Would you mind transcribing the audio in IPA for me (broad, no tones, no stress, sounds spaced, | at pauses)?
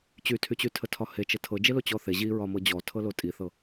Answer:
t͡ɕ y tʰ y t͡ɕ y tʰ ə tʰ ɒ h e t͡ʃ ə tʰ ɤ d͡ʒ e l o t͡ɕ ɔ θ e ʑ i ɹ ɒ m ɤ d͡ʑ ɔ tʰ ɤ l o tʼ i θ ɤ